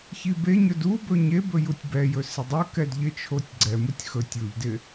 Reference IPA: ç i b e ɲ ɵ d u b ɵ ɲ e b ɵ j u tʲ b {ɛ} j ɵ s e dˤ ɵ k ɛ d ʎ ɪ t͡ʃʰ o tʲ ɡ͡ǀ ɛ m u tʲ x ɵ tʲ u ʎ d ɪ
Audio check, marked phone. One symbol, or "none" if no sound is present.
ɛ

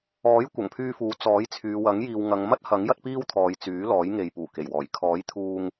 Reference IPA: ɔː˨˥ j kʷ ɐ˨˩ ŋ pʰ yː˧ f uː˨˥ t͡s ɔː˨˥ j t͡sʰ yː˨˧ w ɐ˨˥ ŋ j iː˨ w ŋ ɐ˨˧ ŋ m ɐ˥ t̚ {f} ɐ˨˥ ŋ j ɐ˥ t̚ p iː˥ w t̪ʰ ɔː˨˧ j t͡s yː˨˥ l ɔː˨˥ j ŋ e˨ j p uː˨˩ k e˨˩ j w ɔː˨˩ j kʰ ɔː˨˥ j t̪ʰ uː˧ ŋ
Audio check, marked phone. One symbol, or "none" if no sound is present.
h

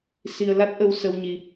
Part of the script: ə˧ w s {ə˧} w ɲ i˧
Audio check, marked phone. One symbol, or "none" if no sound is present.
ə˧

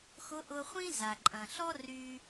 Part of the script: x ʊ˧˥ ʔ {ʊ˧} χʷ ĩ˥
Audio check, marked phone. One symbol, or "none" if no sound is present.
ʊ˧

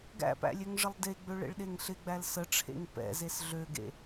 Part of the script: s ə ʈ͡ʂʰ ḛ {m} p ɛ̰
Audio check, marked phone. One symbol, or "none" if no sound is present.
ŋ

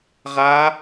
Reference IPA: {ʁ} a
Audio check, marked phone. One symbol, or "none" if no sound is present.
ʁ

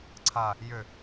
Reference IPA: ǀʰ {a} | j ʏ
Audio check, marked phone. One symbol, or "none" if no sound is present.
a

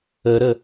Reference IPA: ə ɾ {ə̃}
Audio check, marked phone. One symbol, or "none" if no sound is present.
ə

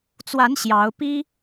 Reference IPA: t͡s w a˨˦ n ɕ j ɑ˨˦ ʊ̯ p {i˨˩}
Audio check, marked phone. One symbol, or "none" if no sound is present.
i˦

